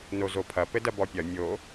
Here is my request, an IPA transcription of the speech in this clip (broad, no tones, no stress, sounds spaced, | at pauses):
n o z o pʰ ɐ p ɘ d ɐ b ɔ pʲ ɐ mʲ o